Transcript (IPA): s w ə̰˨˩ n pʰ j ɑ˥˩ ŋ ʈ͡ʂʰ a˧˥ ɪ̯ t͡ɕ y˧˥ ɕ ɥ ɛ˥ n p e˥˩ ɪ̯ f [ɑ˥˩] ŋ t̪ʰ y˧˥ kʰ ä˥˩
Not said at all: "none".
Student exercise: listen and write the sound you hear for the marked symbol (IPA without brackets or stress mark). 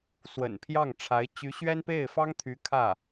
ɑ˥